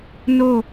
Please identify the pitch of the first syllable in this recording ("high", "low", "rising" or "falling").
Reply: falling